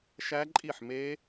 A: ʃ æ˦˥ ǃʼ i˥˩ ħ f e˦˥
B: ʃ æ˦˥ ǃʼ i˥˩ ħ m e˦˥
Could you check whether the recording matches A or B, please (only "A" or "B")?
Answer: B